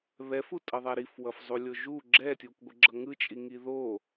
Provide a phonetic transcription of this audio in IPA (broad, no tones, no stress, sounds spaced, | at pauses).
β ɛ f u tʼ ʌ ðˤ a ɾ i f w ʌ f zˤ u lʲ o ʒ u ɡ͡ǁ ɛ tʲ u kʷ ɡʷ ɯ ɡ͡ǁ ʌ ŋ ɯ t͡ʃʼ i ŋ i ð o